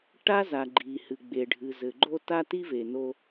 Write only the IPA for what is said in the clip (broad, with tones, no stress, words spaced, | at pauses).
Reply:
ʈa˥za˩ ɡ͡ǃi˩hɨ˩ɡ͡be˩ ɖʱɨ˩zɘ˩ɡ͡ǃo˥ ta˥ti˥ve˩no˧